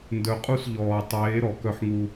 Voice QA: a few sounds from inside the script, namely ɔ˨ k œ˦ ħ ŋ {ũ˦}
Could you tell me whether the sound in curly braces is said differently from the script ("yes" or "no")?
yes